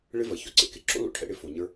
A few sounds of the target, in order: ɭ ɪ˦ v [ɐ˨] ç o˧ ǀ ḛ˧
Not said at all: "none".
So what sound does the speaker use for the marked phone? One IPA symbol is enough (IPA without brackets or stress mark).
ɐ˨